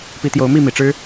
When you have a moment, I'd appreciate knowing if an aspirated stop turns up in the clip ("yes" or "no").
no